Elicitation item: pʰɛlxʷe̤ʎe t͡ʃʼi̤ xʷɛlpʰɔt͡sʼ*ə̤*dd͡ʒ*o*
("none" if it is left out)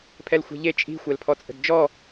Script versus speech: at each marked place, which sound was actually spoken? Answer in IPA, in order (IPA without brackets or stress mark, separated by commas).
ə̤, ɔ